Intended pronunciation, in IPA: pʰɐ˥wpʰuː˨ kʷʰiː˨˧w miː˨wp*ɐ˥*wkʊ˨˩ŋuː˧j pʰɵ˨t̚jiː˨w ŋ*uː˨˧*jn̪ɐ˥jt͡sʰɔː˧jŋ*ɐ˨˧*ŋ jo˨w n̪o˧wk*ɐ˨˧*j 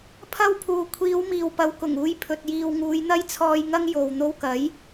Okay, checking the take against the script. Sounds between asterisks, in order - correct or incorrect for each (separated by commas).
incorrect, correct, incorrect, incorrect